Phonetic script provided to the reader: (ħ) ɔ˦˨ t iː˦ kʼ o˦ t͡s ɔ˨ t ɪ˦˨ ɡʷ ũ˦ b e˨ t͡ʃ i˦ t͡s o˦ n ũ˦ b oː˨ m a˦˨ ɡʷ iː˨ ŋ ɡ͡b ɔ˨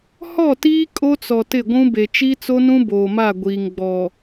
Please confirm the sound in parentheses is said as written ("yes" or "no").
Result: no